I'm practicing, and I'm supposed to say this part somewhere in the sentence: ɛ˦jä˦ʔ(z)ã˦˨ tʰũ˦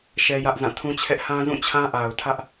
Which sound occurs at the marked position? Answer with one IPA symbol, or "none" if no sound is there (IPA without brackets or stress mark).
z